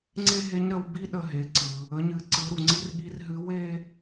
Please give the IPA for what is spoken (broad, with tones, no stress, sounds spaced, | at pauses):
ŋ͡ǀ e˥ ɦ e˧˥ ɲ ɾ ə˧ w b i˥ ɗ ə˧ ɦ e˩˧ ǀ ɯ˩ | ə˩˧ ɲ ɨ˩˧ ǀ ɯ˩˧ ɾ u˩ ŋ͡ǀ i˧˥ r ɠ i˧˥ r ɦ ɨ˧˥ w e˥